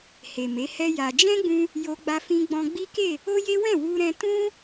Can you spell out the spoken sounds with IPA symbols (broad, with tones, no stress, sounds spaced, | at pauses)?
h e˨ m e˨˦ h ɛ˦ j a˧ d͡ʒ ɛ̃˦ ɡ͡b ũ˧ | j o˧ ɡ͡b a˧ f ĩ˧ ɡ͡b ɔ̃˧ ɡ͡b i˦ k e˦˨ | o˦ j e˦ w ɛ̃˦˨ w u˧ ɾ ɛ̃˧ t ũ˦